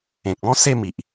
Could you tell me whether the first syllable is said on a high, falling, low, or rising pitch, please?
low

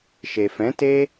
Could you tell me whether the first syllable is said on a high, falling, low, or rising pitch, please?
low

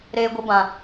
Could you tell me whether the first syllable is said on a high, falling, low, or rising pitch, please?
high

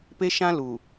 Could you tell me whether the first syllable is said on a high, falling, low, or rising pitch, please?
high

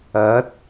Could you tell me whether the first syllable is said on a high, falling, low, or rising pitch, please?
rising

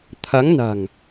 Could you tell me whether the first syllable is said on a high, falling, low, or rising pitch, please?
rising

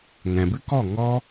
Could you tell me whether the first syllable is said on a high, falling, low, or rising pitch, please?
low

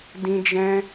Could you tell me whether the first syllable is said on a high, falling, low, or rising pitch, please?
high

